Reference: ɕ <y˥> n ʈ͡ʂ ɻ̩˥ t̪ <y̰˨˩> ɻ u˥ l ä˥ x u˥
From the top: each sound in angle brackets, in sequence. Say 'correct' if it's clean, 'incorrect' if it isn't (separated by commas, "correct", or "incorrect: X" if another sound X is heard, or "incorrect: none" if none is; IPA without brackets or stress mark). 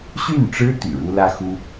incorrect: y˥˩, correct